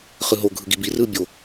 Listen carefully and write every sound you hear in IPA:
χɯɦo ɡʱɯɡibi rɯbʲo

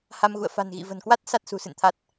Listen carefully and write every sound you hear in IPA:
ha˧mɣṵ˧˨ə̯ fa̤˨˩nɣḭ˧˨və̤˨˩nkwa˦˥t̚ sa˦˥t̚sṳ˨˩sɨ̰˧˨nt̪ʰa˦˥t̚

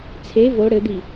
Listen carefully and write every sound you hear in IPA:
t͡sʰe vo ɽɘd̪i

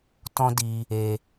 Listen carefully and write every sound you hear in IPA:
tɔ̃˦di˧ | e˧

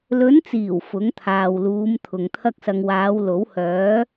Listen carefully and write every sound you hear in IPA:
lɵ˨˧nt͡siː˨˩w fʊ˨˥ŋt̪ʰaː˨wluː˨˧m t̪ʰʊ˨ŋt̪ʰɐ˥k̚sɐ˧ŋ waː˨˧wlo˨˥whœː˨˥

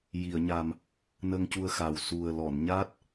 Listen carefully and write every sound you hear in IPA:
ji˨˩˨ə̯ɲa˨˩m | nə˧ŋcu˧ə̯xa˨˩w su˨˩ə̯ lɔ˨˩˨nɲa˦˥t̚

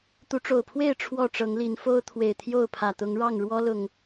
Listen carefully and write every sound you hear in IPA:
t̪u˨˦ʈ͡ʂo˨˩ʊ̯pʰwe˥˨ɪ̯ ʈ͡ʂʰwɔ˥˨ʈ͡ʂɤ˨˦ŋli˨˦n fo˦ʊ̯ t̪ʰwe˨˩ɪ̯t̪ʰjo˥˨ʊ̯pʰä˨˩t̪ʊ˨˦ŋ ɻɑ˥˨ŋ ɻwɔ˦lʊ˨˩ŋ

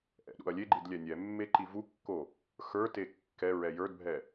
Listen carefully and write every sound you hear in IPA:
ʔɛ̰ɗṵɐ̯lʲeɡ͡ǃid lʲɛnʲɛmːe ǃivukːo | xə˞te kːɛ ɹɛjə˞dbʱɛ

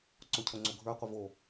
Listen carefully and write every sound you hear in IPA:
ǀocʰoŋ͡ǀoɡʱə˞ qʷəvo

